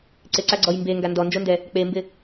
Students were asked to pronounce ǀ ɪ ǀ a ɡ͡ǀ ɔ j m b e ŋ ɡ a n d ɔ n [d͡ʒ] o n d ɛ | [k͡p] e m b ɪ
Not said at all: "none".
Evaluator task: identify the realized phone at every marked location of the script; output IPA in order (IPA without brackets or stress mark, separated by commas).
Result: d͡ʒ, k͡p